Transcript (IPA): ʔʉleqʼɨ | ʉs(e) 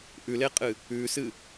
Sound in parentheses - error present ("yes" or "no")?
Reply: yes